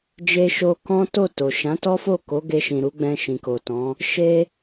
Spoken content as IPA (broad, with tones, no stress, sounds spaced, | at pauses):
d͡ʒ e˧ ʃ o˧ k ɔ̃˦ t o˦˨ t o˨ ʃ ã˨˦ t ɔ˦ f o˦˨ k o˨˦ ɡ e˧ ʃ ĩ˨ ɾ u˨˦ ɡ͡b ɛ̃˧ ʃ ĩ˨ k o˨ t ɔ̃˨˦ | ʃ e˦